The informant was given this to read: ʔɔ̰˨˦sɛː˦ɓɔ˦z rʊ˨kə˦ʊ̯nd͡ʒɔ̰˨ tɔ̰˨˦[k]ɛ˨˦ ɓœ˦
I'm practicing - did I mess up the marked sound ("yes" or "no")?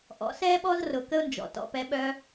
yes